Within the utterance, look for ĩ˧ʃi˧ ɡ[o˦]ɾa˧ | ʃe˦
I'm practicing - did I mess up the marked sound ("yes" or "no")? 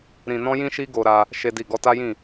yes